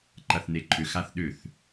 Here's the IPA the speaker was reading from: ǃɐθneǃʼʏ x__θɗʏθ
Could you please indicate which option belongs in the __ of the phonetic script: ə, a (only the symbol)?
a